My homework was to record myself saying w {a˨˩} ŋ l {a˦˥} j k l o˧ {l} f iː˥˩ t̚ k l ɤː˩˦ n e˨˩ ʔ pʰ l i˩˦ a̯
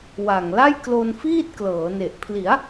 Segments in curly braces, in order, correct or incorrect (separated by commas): correct, incorrect, incorrect